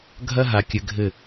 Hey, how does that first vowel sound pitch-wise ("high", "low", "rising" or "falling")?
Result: high